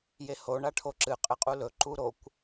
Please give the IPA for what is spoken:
j e h o ɳ a ʈʰ o ǁ ɨ qʼ ɨ qʼ u l ɵ ǃ u ɾ o kʷ

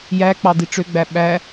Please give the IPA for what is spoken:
j æ k͡p ɑ d̪ i ʈ͡ʂ ø ɡ͡b æ ɓ æ

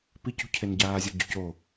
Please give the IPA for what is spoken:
p i c ṳ cʰ e n ɟ aː zʲ ɔ ɟ o̤ c o

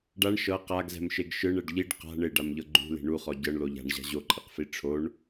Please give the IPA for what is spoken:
ɖ a ɳ ʃ ɤ q a ɡ z ɛ̤ m ʃ e ɡ ʃ ɯ ɳ ɛ ɖ ʎ i ɖ q a̤ ɳ e ɖ a m ʎ ɤ ɡ͡ǃ ṳ l e̤ ɳ u χ ɔ ɟ ɤ ɳ l o ʎ a̤ ɳ ʑ a̤ ʑ o ǃʼ e q f i ʈ͡ʂʰ o ɳ

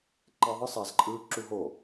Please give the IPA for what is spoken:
ǃ e ðˤ ɯ sˤ ɛ z ǃʼ ɯː ǁ u ɦ o

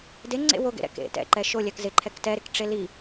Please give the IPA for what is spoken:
d e ŋ͡ǀ ḛ w o ɡ ḛ ɾ ɛ̰ k ḛ t ɛ̰ ǃ ɛ ʃ o lʲ ɛ k z ɪ ǃʰ ɛ k t ɛ ɾ ɪ k ʈ͡ʂ e l i

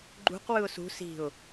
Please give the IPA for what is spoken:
ɡ͡ǃ ṳ q w ɯ ʊ̯ s ṳ s i̤ ʊ̯

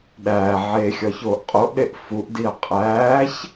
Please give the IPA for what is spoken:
ɗ æː ʕ eː xʲ ɒ ç oː ʔ qʼ o ʔ ɗ e ʔ f u ʔ d i ɐ̯ qʼ æː ç

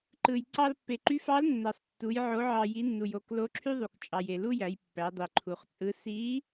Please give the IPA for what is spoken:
ǃ ɯ˩ j ǀ ɑ˧ l pː e˩ ǃ y˧˥ f ɑ˧˥ l nː æ˩ sˤ tː u˩˧ j ʕ o˩˧ ʕ ɑ˩ j i˩˧ nː u˩ j o˩˧ k l o˧˥ ǁʰ y˥ ðˤ u˩ k t͡ʃʼ ɑ˩ j e˩ l u˥ j æ˩˧ j pː æ˩˧ dˤ i˩ ǃʰ u˩ χ t͡sʼ ɯ˧˥ s i˧˥

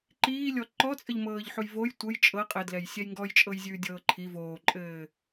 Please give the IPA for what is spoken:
ǃ iː lʲ ɔ ǃ ɔ t͡sʼ ə ʎ m ɤː ʎ ħ u j v o j tʷ ə j t͡ʃʼ ɤ qʼ ɘ d l ɛ j sʲ ɛ j ŋ ɡ ɔ j t͡ʃʼ ɤ j zʲ ʉː dʲ ɤː ǃʰ i v oː ǃʼ ɘː

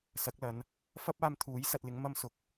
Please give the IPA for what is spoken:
s ɐ˨˥ k̚ l ɐ˨˧ n | f ɐ˥ p̚ aː˧ m t̪ʰ uː˨˥ j s ɐ˨˥ t̚ l ɪ˨˥ ŋ m ɐ˥ m s ʊ˨ k̚

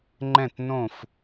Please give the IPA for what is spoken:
ŋ͡ǃ ɛ̃˦˨ t n õ˦˨ f

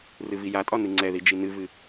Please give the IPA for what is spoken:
r ɨ v i j a tʼ ɒ n ɨ ŋ͡ǀ ɛ ð i d͡ʒ i n ɨ v ɨ

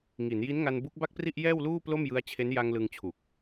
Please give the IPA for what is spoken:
ŋ i˩˦ n j i˦˥ n ŋ a˧ n b u˦˥ k̚ b a˥˩ k̚ p r i˥˩ ʔ j ɛː˥˩ w l uː˥˩ p l o˥˩ m j ɯ˦˥ a̯ t͡ɕʰ e˦˥ n j a˧ ŋ l ɯ˧ ŋ t͡ɕʰ u˨˩ k̚

